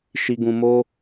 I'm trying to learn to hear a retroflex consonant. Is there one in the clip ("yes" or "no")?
no